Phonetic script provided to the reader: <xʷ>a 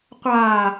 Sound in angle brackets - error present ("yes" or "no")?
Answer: yes